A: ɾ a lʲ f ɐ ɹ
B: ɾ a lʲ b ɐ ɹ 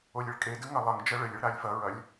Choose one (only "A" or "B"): A